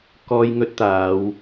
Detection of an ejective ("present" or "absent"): absent